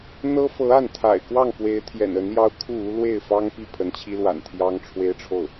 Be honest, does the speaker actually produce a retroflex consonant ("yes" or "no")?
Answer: yes